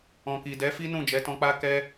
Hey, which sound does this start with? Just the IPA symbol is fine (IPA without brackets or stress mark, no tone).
ɔ̃